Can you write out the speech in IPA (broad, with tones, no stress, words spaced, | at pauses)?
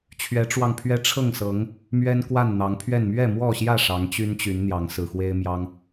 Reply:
t͡ɕʰɥɛ˨˦ʈ͡ʂwɑ˧ŋpʰɥɛ˦ ʈ͡ʂʰɤ˥˨ŋ sɤ˨˦ŋ | mɥɛ˦nkwa˥˨nn̪ɑ˨˦ŋpʰɥɛ˥˨n mɥɛ˥˨mwɔ˥˨ɕjä˥˨ ʂɑ˨˦ŋt͡ɕy˦nt͡ɕy˨˦n n̪jɑ˨˦ŋsɹ̩˨˩xwe˦ɪ̯ mjɑ˦ŋ